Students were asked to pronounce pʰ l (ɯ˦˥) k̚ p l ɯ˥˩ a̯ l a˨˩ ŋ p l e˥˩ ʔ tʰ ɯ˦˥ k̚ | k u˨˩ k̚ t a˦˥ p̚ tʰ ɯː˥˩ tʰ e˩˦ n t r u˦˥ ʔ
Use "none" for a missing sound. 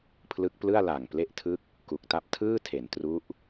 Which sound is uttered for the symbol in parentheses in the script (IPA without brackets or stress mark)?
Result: ɯ˦˥